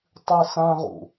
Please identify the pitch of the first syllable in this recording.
high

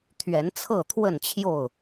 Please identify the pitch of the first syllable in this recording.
rising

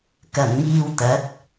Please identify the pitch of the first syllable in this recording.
low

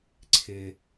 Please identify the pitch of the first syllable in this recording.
low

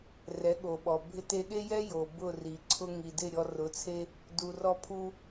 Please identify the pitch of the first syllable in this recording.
rising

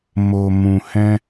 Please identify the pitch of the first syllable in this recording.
low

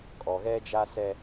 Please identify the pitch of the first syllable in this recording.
low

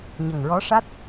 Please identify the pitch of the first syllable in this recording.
low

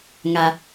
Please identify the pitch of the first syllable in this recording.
high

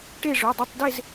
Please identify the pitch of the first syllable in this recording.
falling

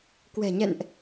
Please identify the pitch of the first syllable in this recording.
low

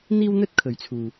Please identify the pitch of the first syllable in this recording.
high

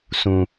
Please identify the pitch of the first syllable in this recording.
low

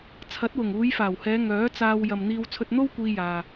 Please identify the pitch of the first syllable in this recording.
rising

